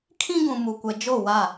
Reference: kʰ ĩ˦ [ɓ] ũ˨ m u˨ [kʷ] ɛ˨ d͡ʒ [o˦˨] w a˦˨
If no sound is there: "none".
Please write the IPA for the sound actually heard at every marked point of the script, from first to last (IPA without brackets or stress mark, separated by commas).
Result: ɡ, kʷ, o˦˨